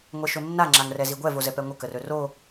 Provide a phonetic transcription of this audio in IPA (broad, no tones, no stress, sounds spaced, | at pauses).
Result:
ŋʷ ɛ ʃ ɵ nː a ŋ͡ǁ a ŋ r ɛ z i ɡʷ ɛ v o z ɛ p ɛ ŋʷ ə k ə r ɵ r o